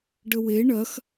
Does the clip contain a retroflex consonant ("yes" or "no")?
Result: yes